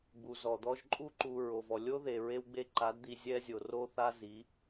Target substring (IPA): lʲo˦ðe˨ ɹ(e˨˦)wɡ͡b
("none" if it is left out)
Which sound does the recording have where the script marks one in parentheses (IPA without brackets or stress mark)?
e˦